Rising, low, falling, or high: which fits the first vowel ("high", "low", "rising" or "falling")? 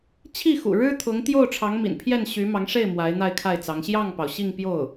falling